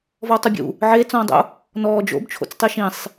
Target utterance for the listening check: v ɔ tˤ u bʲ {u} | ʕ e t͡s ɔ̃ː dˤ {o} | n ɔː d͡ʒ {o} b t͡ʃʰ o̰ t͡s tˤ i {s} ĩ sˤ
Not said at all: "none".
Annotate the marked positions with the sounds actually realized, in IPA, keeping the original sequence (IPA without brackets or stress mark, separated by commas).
ṵ, o̰, o̰, ʃ